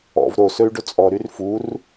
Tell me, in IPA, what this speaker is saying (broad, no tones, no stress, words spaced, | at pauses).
ɔ̰v ɾosɵy̯ɖɵ t͡sʼɔɾyr fur